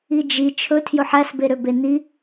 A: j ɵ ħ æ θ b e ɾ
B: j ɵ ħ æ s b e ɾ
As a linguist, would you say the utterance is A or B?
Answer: B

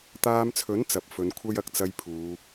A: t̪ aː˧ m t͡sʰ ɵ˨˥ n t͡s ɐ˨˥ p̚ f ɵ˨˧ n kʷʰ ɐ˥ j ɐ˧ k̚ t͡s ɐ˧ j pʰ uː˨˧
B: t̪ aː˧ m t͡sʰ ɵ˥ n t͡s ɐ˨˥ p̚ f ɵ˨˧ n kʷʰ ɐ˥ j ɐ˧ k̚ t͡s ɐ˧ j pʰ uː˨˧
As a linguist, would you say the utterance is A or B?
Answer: A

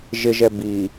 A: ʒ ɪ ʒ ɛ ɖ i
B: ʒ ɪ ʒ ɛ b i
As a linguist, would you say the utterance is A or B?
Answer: B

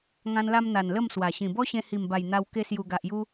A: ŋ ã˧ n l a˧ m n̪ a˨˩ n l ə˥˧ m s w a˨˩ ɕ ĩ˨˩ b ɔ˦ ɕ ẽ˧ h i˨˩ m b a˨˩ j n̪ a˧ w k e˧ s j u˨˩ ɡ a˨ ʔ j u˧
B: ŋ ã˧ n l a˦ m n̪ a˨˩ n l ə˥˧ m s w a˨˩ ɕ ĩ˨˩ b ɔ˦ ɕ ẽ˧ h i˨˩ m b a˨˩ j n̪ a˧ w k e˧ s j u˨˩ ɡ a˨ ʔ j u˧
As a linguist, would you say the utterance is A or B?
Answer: A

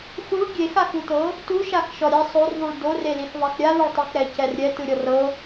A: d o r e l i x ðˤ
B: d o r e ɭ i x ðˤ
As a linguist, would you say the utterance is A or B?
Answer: A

